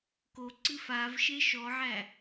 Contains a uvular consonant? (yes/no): no